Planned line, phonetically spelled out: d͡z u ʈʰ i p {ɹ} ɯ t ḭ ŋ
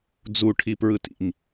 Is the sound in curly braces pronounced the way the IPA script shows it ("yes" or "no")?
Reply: yes